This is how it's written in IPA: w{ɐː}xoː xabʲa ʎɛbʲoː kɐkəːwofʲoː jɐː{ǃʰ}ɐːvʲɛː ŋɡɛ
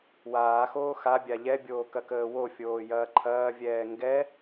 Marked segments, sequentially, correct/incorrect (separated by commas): incorrect, correct